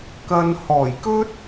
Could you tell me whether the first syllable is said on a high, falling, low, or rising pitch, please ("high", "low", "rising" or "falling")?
low